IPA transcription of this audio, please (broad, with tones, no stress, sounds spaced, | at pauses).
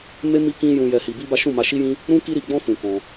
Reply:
m e˦ m i˦ k ĩ˦ j ũ˧ j ɛ˧ h i˧ b i˦ b a˦ ʃ ũ˦˨ m a˧ ʃ i˦ j ĩ˦ | ɾ ũ˦ k i˦ ɾ i˧ ɡ͡b ɔ̃˦ f ũ˧ k ɔ̃˧